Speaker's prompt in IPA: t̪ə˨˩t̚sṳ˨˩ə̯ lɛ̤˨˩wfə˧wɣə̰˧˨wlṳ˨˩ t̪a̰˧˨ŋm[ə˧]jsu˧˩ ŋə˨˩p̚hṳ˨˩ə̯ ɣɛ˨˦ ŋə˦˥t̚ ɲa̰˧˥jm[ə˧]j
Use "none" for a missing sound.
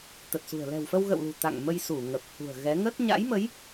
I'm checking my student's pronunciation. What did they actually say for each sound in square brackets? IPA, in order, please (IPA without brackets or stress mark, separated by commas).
ə˧, ə˨˦